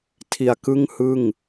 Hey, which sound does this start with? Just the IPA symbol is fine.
tʰ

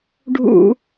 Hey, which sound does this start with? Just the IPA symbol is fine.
ɖʱ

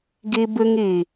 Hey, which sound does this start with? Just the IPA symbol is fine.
ɡ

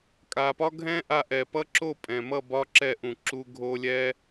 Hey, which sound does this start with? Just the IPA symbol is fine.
kʼ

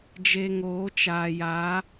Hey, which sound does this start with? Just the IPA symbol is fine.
d͡ʒ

